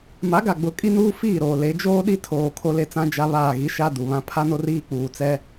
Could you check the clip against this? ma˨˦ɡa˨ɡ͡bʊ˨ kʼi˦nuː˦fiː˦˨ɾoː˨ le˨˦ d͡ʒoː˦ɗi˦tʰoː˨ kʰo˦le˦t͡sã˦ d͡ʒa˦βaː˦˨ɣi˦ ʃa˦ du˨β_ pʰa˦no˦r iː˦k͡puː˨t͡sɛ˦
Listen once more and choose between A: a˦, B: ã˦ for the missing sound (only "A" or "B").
B